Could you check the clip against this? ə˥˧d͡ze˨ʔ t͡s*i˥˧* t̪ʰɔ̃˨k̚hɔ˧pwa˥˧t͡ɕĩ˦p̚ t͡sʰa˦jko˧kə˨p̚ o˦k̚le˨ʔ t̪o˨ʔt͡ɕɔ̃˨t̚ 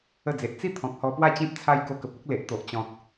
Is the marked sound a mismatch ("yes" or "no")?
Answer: no